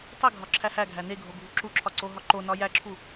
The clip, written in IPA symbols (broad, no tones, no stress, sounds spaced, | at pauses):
tˤ i ɡʱ ɒ ǁʰ æ h æ ɡʱ æ n e ɡʱ o ɡʱ u ǁ u ǁʰ ɒ ǀ o ɦ ɒ ǃ o n ɒ j æ ǁʰ u